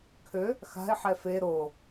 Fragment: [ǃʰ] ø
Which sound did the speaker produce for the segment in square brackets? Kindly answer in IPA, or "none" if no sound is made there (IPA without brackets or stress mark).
kʰ